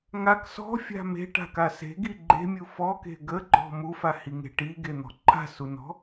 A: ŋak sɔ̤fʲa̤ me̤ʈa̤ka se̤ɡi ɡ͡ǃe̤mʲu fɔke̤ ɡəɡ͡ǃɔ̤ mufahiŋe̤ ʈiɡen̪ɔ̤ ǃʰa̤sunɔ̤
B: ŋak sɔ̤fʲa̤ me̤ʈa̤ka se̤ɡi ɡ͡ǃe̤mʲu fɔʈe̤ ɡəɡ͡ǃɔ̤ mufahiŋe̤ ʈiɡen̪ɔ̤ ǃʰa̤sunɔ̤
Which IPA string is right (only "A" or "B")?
A